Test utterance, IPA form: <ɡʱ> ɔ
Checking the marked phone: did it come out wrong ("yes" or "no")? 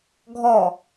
no